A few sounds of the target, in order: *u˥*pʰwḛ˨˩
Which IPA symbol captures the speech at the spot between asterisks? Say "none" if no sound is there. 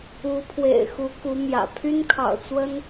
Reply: u˧˥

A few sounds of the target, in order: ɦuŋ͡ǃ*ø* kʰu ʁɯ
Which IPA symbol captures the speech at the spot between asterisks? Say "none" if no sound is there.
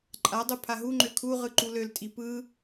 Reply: ø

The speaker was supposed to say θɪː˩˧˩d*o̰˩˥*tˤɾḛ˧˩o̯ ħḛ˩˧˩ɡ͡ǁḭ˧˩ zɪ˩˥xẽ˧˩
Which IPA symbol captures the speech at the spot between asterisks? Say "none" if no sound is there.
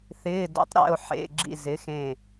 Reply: o̰˩˥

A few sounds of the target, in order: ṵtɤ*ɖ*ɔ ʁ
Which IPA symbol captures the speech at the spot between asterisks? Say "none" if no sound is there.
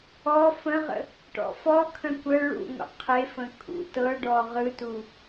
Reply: ɖ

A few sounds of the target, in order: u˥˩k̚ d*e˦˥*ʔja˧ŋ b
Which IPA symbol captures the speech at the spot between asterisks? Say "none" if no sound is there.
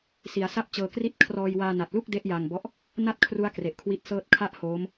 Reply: e˦˥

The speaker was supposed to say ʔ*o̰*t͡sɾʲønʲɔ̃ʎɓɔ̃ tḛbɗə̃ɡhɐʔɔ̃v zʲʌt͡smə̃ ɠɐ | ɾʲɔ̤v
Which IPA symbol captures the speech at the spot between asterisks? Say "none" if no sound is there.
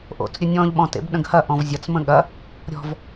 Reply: o̰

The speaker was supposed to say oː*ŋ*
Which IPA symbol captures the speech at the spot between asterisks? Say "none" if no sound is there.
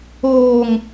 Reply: ŋ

